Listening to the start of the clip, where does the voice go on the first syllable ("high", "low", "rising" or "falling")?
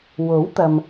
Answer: rising